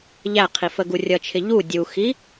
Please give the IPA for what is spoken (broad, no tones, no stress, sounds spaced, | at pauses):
ʎ æ qʰ i f ə ɡ u rʲ ʌ t͡ʃʰ ɪ ʎ u dʲ u x i